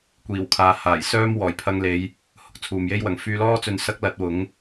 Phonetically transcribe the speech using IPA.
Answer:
kʷ iː˨˩ w kʰ aː˨ h aː˨˩ j s œː˥ m w ɔː˨˩ j pʰ ɐ˧ ŋ l e˨˧ j | h ʊ˨ k̚ t͡sʰ uː˨ m j e˥ j w ɐ˨˥ ŋ f yː˧ l ɔː˥ t͡s ɵ˧ n s ɐ˥ k̚ l ɐ˨˥ t̚ w ʊ˨˥ ŋ

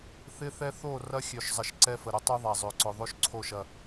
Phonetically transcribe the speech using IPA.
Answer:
θ ɪ˦ θ ɛ˦ θ o˦˨ r ɐ˦ xʲ ø˨ ʃ zˤ ə˨ ʃ ǀ ɛ˦ f ə˨ ɾ ʊ˦ tˤ ø˦ ðˤ a˨ zˤ ø˨ ǀ ʊ˨ ðˤ o˦ ʃ ǀʰ o˦˨ ʃ ɐ˨

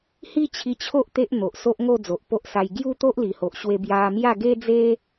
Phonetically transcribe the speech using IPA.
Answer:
h i˦ t͡ɕʰ i˧ t͡ɕʰ o˦ ʔ t̪ e˦ ʔ n̪ o˨ ʔ s o˦ ʔ ŋ o˥˧ d͡z o˨ ʔ p o˦ ʔ s a˧ j ɡ j u˦ t̪ o˦ ʔ l i˨˩ h o˨ ʔ ɕ w e˧ b j a˧ m j a˥˧ ɡ e˦ d͡z e˦

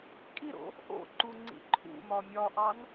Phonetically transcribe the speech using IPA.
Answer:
kʼ i ɾ o̰ | ʔ o̰ ǃ u ŋ͡ǀ ḭ ǃʰ ṵ m ɒ mʲ ɒ ʔ ɑ n

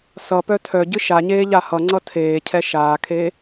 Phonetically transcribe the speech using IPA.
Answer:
s ʌ p œ tʰ œ ɟ ɨ ʃ a ɲ eː ʎ a h ʌ ŋ͡ǀ ʌ tʰ eː cʰ ɛ ʃ aː kʰ eː

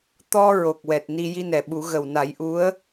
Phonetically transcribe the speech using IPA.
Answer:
t̪ ɔ˧ ɹ o˨˩ k̚ w ɛ˨˩ t̚ n i˧ j i˧ n ɛ˨˩ ɓ u˨˩˦ ɣ ə˨˩ w n a˨˩˦ j ʔ u˧˥ ə̯

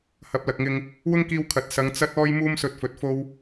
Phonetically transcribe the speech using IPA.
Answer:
h ɐ˨˥ p̚ l ɐ˨ k̚ ŋ ɪ˧ ŋ | w ʊ˥ ŋ k iː˧ w kʰ ɐ˨ t̚ s ɐ˨˧ ŋ t͡s ɐ˥ t̚ ɔː˥ j m uː˥ m s ɵ˧ t̚ f ɵ˨ t̚ f o˥ w

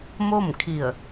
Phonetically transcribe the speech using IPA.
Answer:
m o˥˨ m kʰ i˧˩ ə̯

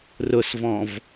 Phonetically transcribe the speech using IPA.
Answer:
r ʊ s v ɔ̃ v

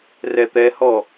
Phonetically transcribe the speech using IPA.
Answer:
r ɛ t̪ ɛ h ɔ

